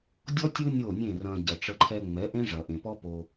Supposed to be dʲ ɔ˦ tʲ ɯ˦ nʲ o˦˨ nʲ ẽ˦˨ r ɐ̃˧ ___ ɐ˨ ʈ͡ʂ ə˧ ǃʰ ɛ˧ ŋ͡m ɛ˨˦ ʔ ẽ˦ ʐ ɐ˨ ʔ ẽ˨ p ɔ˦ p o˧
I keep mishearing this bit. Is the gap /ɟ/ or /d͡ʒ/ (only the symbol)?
ɟ